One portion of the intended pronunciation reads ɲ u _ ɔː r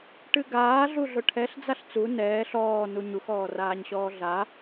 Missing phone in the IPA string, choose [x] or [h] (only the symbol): x